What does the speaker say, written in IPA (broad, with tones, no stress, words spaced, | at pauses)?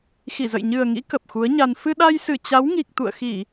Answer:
xi˧˩zə̰˧˨jɲɨ˨˩ə̯ŋḭ˧˥ kə˨˩p̚xu˨˦ə̯ɲa˧n fɨ˧ɗa˧jsɨ˧˩ t͡ɕa˨˦wŋi˨˩k̚ t̪ṵ˧˨ə̯xi˧˩˨